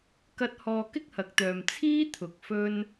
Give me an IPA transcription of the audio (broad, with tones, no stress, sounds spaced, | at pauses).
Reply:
k ɐ˥ t̚ h ɔː˧ k ɪ˥ k̚ h ɐ˨ k̚ t̪ œː˨ m t͡sʰ iː˥ t̪ʰ ʊ˨ k̚ f ɵ˥ n